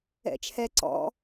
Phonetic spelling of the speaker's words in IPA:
ɛ̰ t͡ʃʰ ɛ ǀ ɔ̰

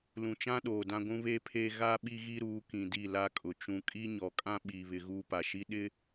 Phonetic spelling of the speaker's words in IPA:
l ũ˨ t͡ʃ ã˦ ɗ oː˨ d ã˦ ɡʷ ũ˦ β eː˦ pʰ eː˦ ɣ a˦ ɓ i˦ ɣ i˦ ɾ uː˨˦ k ĩ˨ d i˦˨ l a˦ kʼ ʊ˨ t͡ʃ ũ˨ kʼ i˦ ɲ ɔ˨ kʼ ã˦ ɓ iː˨ β ɪ˨ ɣ uː˦ p a˨ ʃ i˦ ɗ ɪ˦

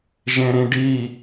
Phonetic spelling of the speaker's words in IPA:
ʒ ẽ ɾ ĩ ɖ i

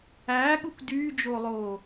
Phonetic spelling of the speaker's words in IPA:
æː ɠ u k d yː d͡ʒ o lˠ oː

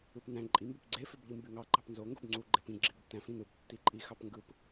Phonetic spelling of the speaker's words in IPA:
ɯ p n æ̃ ǃʼ i m b e p ɡ͡ǀ e f ø b ʎ ɯ m b y ŋ ɑ ɡ͡ǃ ɑ p n z o ŋ ɡ o b ŋ͡ǀ u ɡ͡ǃ e p ĩ ɡ͡ǁ i b ø p t æ̃ f ĩ n ɯ b tː i ǃʼ i x ɑ p ŋ ɡ ɯ p

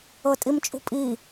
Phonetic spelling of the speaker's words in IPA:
ɤ tʼ i m t͡ʃʼ ṳ pʼ i

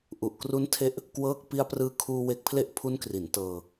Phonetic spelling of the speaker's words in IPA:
ʔ u˨˩ ʔ k r u˦˥ n tʰ e˦˥ ʔ | k w ɤː˥˩ k̚ p i˧ a̯ p r ɯː˦˥ kʰ uː˧ w e˦˥ k̚ pʰ l e˥˩ ʔ pʰ u˦˥ n k r i˩˦ n t ɤː˧

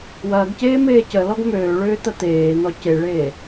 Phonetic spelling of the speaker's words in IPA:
w ɐː ɡ c eː m eː c ə l ɔ ɡ m øː ɭ ʏː t̪ ɐ t̪ eː n̪ ɔ c e ɭ eː

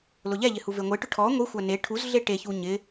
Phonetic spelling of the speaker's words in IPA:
l ʊ ʎ ɛ ʎ ɪ h u v e ŋʷ e ʈ ʊ ʈʰ ɔ ŋʷ i xʷ a n e ʈʰ u z ɮ e ʈ e ç u ɲ ɪ

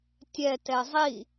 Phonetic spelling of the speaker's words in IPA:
tʲ ɛ t ɛ zˤ i

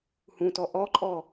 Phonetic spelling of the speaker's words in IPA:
h ũ t ɔ ʔ ɔ ǃʼ ɔ

